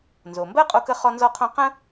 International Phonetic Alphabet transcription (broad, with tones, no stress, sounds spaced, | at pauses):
n z o˩ m b ɜ˥ qʼ o˧ k ə˧ χ ɔ˧ n z ɔ˧ qʰ õ˧ q ə̃˥